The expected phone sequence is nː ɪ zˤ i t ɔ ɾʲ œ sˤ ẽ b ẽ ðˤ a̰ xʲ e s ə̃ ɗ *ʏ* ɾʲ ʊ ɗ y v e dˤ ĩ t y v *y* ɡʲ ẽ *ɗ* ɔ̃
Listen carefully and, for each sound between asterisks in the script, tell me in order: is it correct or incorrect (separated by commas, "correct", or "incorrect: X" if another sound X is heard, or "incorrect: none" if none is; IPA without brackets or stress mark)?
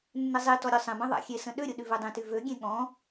correct, incorrect: ø, incorrect: ɠ